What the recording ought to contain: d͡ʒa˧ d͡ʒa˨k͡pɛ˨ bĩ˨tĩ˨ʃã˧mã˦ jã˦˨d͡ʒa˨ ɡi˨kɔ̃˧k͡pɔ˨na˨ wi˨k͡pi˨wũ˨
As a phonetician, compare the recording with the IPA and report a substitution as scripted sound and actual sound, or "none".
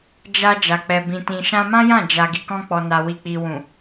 none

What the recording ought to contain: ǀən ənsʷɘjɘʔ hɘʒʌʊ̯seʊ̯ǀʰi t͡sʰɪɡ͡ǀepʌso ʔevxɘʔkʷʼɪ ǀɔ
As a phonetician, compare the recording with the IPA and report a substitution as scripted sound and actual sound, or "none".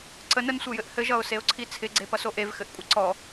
none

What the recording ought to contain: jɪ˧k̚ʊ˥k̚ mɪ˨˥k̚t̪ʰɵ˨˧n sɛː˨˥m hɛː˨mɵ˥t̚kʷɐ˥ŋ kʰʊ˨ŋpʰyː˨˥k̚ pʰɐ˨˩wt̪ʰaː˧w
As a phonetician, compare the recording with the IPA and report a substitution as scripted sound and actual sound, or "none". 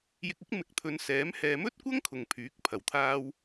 none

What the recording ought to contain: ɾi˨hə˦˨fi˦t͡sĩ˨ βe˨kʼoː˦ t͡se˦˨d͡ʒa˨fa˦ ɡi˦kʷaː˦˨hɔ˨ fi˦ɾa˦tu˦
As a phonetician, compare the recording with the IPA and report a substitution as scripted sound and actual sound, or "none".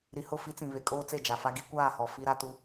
ə˦˨ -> ʊ˦˨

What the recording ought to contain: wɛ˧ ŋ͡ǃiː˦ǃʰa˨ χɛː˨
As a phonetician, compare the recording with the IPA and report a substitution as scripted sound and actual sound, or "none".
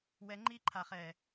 none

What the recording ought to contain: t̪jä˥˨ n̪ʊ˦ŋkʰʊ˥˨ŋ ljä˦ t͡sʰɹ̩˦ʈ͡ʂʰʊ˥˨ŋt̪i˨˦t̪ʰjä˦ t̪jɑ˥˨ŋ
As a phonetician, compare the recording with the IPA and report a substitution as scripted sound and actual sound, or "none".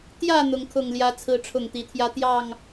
none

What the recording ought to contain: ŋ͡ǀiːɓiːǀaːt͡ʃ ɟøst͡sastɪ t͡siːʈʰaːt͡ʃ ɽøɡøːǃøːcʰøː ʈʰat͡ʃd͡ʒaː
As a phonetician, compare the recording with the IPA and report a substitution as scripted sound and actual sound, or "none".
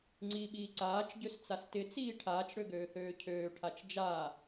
ǃ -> θ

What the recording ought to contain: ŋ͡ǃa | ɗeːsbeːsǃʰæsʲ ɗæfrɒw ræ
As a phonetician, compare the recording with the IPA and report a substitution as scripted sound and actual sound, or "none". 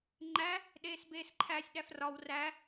a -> æ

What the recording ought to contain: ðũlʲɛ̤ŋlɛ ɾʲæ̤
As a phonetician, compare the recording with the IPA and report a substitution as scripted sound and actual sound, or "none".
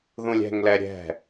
æ̤ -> ɛ̤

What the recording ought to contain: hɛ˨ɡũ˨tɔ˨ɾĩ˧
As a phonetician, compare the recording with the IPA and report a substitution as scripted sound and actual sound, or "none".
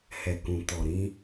ɡ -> k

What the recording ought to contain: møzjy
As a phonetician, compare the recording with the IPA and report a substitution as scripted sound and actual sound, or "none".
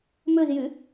none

